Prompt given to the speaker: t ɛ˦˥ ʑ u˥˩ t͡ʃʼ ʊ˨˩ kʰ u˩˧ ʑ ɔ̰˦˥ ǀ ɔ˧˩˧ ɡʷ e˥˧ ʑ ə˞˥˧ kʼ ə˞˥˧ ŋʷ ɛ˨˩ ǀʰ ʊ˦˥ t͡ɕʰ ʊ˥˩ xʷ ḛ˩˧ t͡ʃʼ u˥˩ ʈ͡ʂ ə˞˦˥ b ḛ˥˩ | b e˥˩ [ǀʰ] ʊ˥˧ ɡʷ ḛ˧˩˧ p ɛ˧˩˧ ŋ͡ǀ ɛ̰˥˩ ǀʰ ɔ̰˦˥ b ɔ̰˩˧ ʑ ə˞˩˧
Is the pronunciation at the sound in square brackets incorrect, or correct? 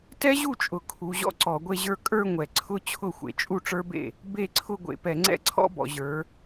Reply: correct